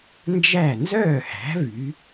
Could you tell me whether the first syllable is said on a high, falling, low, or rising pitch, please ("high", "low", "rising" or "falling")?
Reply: falling